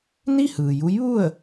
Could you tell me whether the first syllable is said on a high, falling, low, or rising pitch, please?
falling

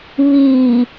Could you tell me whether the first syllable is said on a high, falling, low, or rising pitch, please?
low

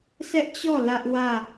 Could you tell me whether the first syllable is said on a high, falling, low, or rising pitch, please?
high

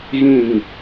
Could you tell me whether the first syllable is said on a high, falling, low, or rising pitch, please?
falling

